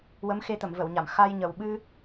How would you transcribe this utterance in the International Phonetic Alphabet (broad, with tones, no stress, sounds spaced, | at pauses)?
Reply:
w ə˧˥ m x e˧ t̪ ə˨˩˨ m v ə˨˩˨ w ɲ a˨˩˨ m x a˧ j ɲ ə˨˩ w ɓ ɨ˧